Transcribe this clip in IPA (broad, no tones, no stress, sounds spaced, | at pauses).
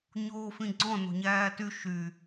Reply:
ɲ oː f ĩ ɡ͡ǀ ɔ̃ n o̤ ɲ æː t y ʃ y